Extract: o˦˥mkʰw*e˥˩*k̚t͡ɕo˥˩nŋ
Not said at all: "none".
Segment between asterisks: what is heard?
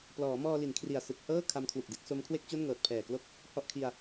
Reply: e˥˩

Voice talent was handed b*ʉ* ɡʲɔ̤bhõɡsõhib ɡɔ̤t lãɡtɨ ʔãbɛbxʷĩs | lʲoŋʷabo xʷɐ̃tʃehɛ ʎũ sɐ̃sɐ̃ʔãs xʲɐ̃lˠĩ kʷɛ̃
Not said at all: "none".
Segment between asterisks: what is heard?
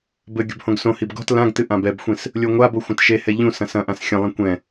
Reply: ɘ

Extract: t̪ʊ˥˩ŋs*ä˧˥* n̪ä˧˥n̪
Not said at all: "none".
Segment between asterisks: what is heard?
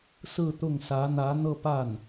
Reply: ä˧˥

